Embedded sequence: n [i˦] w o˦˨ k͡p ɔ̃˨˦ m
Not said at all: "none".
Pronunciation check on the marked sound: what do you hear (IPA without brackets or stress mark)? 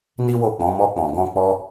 i˦